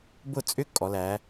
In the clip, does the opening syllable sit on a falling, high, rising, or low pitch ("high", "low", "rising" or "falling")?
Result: falling